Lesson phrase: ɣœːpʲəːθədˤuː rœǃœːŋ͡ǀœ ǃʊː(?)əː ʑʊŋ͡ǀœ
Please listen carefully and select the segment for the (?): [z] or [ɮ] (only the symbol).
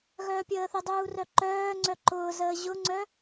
z